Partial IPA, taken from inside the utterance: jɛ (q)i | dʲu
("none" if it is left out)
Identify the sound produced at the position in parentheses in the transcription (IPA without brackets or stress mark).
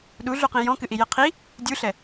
qʰ